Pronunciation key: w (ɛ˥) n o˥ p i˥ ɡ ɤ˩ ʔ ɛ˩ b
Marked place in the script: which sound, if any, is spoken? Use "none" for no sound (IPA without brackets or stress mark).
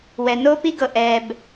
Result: ɛ˩